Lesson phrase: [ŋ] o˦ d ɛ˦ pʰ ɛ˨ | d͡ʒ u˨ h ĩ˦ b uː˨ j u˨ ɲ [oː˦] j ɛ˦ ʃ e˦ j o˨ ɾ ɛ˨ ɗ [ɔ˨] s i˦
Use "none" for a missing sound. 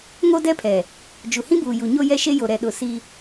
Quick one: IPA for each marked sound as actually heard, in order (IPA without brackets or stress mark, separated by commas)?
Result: ŋ, o˦, ʊ˨